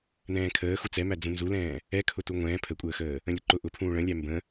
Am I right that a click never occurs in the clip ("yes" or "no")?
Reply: no